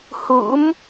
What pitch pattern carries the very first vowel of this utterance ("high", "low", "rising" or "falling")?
rising